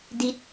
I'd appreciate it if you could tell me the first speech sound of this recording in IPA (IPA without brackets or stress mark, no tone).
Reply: d